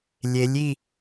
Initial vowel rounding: unrounded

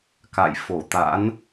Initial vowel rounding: unrounded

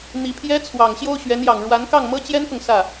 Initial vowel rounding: unrounded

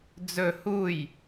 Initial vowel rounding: rounded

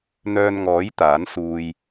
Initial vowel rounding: rounded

